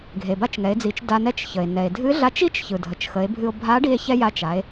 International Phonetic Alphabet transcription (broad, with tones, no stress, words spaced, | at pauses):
ɡʱe˩ba˧˥t͡ʃŋɛ˩˧e̯d͡zi˩˧t͡ʃ da˧nɛ˧t͡ʃ çə˩e̯nɛ˩e̯dʱɨ˧˥ ɮa˧˥t͡ʃi˥t͡ʃçɯ˩dʱə˩t͡ʃ xə˩˧e̯bʱɨ˧o̯ bʱa˧˥ɖi˧e̯ çɛ˧ ja˧ t͡ʃa˩˧e̯